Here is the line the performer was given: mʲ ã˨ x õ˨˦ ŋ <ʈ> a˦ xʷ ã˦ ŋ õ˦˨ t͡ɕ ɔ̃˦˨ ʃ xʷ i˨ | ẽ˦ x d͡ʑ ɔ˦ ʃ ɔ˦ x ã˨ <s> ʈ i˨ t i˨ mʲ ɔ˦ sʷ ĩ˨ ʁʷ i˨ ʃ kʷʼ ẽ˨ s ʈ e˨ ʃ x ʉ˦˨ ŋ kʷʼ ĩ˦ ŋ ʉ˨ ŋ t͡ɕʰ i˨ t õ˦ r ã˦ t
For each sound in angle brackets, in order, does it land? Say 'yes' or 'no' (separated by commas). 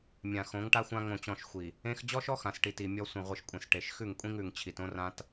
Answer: yes, yes